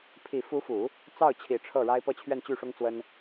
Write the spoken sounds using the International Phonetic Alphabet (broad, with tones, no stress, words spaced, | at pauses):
pʰi˨˩fu˧˥fu˨˩˦ | t͡sɑ˥˩ʊ̯t͡ɕʰi˨˩ ʈ͡ʂʰɤ˥˩ɻa˥ɪ̯ pɤ˥˧t͡ɕʰɥɛ˥˧nt͡ɕy˥˩ ʂʊ˥ŋt͡swə˥n